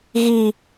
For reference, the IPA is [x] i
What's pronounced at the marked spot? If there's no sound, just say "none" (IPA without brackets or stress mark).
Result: ɣ